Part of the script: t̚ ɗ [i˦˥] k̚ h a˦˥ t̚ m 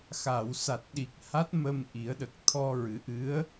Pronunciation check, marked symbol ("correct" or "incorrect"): incorrect